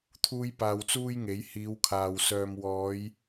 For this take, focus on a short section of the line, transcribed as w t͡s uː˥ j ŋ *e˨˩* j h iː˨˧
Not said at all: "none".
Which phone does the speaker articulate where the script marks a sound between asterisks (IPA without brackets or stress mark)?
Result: e˨˥